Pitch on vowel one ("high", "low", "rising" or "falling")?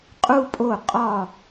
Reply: high